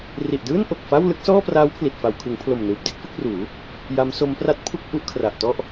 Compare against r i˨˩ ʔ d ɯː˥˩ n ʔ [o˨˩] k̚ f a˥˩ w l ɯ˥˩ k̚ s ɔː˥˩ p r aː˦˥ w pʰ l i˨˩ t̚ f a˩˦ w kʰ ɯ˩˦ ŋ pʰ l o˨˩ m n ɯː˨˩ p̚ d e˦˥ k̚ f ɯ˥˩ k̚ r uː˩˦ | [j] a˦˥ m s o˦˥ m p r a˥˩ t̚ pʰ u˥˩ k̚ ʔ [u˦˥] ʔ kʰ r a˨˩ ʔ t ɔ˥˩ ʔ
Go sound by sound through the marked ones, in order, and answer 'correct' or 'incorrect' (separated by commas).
correct, correct, correct